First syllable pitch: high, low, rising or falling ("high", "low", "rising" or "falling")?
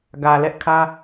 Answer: low